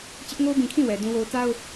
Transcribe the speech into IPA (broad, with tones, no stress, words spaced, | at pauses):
t͡ɕɪ˦ʔŋo˦bĩ˨kʰĩ˦˨ wɛ˨dũ˦wo˦ʊ̯ ta˦ʊ̯